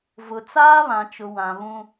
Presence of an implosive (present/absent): absent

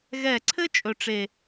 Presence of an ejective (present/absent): present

